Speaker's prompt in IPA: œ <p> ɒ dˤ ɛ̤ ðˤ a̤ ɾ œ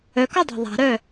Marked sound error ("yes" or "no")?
yes